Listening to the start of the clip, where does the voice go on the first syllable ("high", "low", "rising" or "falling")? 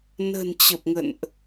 low